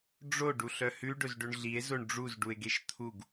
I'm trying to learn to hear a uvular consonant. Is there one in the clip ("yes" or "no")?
no